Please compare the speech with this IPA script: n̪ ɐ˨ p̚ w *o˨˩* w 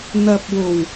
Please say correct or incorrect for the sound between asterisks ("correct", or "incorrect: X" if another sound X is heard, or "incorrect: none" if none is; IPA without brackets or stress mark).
correct